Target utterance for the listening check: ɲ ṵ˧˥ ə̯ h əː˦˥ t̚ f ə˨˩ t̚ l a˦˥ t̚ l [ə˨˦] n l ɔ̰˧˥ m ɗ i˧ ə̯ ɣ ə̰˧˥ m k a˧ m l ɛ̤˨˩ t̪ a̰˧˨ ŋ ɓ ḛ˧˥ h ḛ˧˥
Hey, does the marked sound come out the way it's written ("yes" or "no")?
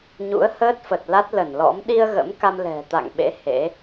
no